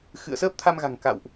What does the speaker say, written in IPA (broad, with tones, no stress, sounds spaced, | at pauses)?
x ɨ̰˧˨ ə̯ s əː˦˥ p̚ t̪ʰ a˧ m ɣ a̤˨˩ ŋ k a̰˧˨ w ʔ